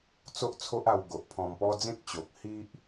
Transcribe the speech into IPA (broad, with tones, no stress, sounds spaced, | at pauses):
t͡s o˦ ʔ t͡sʰ o˦ ʔ a˧ w ɡ o˨ ʔ pʰ ɔ̃˧ m p ɔ˦ d͡z ẽ˦ k̚ t͡ɕ o˨ k̚ h i˦ ʔ